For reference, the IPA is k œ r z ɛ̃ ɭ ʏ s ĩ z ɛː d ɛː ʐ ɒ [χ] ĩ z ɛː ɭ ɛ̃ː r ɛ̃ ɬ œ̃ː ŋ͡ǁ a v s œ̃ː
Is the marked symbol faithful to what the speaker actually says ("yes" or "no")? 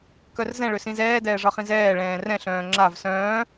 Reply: yes